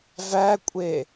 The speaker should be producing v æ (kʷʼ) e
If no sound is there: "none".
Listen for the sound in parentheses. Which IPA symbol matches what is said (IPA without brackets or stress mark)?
kʷʼ